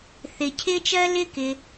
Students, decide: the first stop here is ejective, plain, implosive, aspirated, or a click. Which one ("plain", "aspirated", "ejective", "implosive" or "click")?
aspirated